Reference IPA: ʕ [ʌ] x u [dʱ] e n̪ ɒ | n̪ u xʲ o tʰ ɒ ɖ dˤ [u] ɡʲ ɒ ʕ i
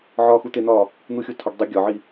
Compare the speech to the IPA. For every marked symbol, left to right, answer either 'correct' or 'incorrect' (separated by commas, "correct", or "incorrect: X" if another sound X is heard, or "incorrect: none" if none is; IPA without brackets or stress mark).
incorrect: ɒ, incorrect: t̪, correct